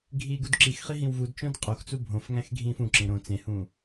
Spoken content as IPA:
ɡʱiːɡudǁixχi ɦĩwvudt͡ʃõd qʼoxt͡su bʱõfŋæ̃x ɡʱĩːfũǁẽ ɾõ t͡sẽhũ

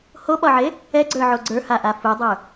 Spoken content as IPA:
hoɓɒʕe | ɛɡ͡ǀə˞ʕo ɡ͡ǀə˞haʔa fudˤə˞

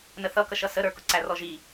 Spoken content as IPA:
nəθʌkʌʃʌ səɾə˞kʊǀæ rɔʒi

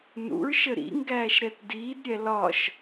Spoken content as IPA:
nṵɹʃə ɾḭŋɡæːʃɾɛt diːdɾʲɛ lɒʃ

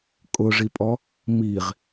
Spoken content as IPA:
kʼʊʐipʼɔ | miʁ

